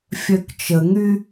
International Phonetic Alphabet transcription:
fʲœkt͡ʃəŋy

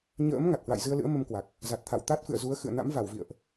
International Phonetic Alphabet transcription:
ɲə̰ː˧˥m ŋa˨˩t̚hwa̰˧˨jzɨ˧ə̯lɨ̰˧˥ə̯ mə˧mkwa˨˩k̚ | za˨˩t̚t̪ʰa̰˧˨w t̪a˦˥t̚fɨ̰˧˨ə̯zu˨˦ə̯ xɨ̰˧˨ə̯na̰˧˥mva˧˩wvḭ˧˨ə̯ʔ

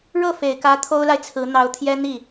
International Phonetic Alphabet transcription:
ɻɤ˥˩fe˨˩ɪ̯kä˧˥ t̪ʰo˥ʊ̯la˨ɪ̯t͡sʰɹ̩˧˥ n̪ɑ˧˥ʊ̯t̪ʰjɛ˥n̪i˥˩

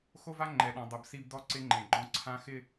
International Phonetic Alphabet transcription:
xo˦va˦ŋ͡ǃɛ˨ɗɔ̃˨ dˤʊ˨b si˦b dɔ˦ǀɪ˦ŋ͡ǃẽ˨ɡ͡ǃɔ̃˦ ǀʰã˦xɪ˦

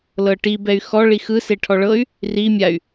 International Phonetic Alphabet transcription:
lɤʈi bɛy̯xɔ ɭixɯ seʈʰɔɭɤy̯ | ri mʲay̯

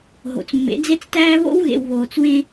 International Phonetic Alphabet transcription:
ɦo̰˨t͡smːḛ˨˦d͡ze˦t͡stæː˦ βo̰˦wɣḛ˨w βoː˨t͡swẽ˦

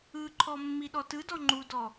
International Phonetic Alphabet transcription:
ɯǃʰɔ mːiɗɔtɯdɔ ŋ͡ǃudɔ

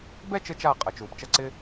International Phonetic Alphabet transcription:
bɛ˥˧t͡ʃɘ˧t͡ʃa˧˩ qʼɐ˩˧t͡ʃu˩˧pt͡ʃɐ˥˧ ǀɪ˥

